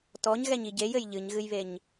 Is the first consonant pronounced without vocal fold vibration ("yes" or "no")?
yes